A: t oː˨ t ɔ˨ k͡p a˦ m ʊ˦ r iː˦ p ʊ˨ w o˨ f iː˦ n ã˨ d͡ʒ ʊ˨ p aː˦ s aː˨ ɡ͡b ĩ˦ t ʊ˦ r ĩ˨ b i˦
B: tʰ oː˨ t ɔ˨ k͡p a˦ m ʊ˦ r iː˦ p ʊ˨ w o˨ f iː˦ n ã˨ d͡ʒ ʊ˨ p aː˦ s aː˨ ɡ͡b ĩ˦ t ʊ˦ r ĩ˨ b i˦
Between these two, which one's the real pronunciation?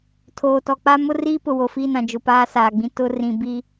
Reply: B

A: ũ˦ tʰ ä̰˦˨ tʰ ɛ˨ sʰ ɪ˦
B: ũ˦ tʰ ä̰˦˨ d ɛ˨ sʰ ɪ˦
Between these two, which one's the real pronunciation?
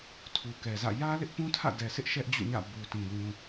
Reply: B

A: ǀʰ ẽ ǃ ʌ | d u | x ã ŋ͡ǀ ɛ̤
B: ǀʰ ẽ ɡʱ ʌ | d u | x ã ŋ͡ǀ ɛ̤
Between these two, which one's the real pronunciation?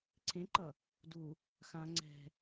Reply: A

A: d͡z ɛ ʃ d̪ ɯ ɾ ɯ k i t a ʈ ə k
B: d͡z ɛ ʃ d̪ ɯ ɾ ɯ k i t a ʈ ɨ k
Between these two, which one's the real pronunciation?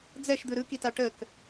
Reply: A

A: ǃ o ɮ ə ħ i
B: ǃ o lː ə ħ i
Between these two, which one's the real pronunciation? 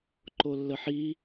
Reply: B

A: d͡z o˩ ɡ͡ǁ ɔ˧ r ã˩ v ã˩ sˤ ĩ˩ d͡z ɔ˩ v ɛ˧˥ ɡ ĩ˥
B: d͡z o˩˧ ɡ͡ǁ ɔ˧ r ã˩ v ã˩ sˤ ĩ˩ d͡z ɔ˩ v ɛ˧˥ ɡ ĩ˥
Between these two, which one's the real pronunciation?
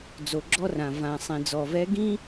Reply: A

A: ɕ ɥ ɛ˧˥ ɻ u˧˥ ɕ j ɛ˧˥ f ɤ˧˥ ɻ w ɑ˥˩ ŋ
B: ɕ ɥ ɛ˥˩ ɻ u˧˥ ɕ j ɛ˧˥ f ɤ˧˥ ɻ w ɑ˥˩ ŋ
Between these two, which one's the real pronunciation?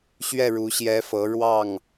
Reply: B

